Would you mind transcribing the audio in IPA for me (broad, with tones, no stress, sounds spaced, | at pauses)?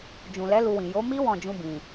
d͡ʒ ũ˨ l ɛ˨˦ l u˧ w ĩ˨ j o˨˦ m i˦ w ɔ̃˦˨ d͡ʒ ũ˧ b ĩ˨